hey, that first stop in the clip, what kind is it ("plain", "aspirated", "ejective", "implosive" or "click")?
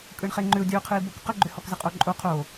ejective